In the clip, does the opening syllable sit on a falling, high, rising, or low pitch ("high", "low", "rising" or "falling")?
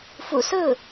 low